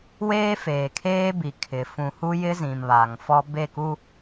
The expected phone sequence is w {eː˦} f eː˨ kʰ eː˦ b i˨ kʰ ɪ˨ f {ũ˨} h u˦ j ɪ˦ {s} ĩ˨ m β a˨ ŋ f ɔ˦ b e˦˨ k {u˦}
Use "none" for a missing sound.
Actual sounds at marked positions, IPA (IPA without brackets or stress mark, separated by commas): eː˦, ũ˨, z, u˦